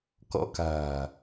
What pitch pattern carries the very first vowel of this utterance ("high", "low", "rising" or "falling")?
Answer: rising